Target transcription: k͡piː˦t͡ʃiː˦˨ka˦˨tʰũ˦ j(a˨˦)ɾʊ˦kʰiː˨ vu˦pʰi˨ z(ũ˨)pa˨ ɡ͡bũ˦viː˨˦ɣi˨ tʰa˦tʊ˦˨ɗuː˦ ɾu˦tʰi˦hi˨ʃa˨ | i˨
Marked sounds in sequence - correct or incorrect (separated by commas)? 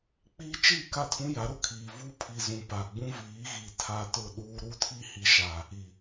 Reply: correct, correct